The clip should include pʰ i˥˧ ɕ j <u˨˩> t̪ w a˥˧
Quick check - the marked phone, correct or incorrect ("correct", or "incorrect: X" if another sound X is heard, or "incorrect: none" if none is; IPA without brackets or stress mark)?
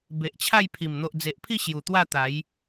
correct